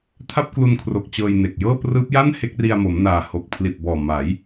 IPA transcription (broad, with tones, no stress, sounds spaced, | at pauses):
tʰ a˥˩ p̚ k l u˧ n kʰ r o˨˩ k̚ t͡ɕ ɤː˧ j n e˨˩ k̚ j ɤː˥˩ p r ɯː˦˥ p̚ j a˥˩ n h e˦˥ k̚ r i˧ a̯ m o˩˦ m n aː˨˩ h o˨˩ k̚ pʰ l i˨˩ t̚ b ɔː˨˩ m aː˩˦ j